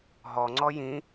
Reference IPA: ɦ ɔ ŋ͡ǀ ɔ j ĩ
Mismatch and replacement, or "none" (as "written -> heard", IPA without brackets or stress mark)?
none